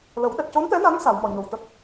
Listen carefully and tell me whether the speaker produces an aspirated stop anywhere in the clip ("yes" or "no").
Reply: no